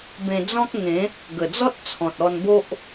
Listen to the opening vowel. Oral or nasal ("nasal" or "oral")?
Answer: nasal